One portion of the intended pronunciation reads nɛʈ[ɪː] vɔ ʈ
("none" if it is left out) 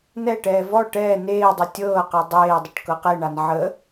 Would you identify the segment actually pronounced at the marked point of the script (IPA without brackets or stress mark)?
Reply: ɛː